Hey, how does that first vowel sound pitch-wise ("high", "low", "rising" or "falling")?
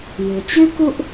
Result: low